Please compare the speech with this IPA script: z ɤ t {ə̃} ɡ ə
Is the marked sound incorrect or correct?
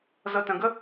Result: correct